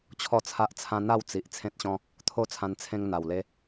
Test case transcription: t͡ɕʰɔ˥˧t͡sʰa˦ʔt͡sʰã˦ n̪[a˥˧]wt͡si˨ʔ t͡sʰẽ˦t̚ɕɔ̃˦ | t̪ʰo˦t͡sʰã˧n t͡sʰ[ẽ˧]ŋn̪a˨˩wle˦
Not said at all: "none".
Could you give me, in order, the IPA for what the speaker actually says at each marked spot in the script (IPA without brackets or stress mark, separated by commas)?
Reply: a˥˧, ẽ˦